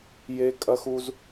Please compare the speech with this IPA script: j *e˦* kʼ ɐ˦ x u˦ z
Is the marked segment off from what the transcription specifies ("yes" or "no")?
no